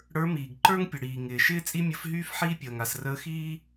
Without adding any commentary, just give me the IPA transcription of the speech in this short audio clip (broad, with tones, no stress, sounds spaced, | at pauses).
ɽ ə˞˧˥ m iː˩ ɡ ǃ ə˞˥ ŋ pʲ ə˩ ɽ iː˩ ŋ ɪː˩ ʃ ɪː˥ t͡sʼ i˥ mʲ ə˧˥ f ɦ yː˥ f ħ iː˥ pʲ əː˩ ŋ a˩ s r əː˧˥ x iː˥